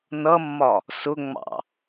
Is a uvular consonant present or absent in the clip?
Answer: absent